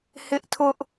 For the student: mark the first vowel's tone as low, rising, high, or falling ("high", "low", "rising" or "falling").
high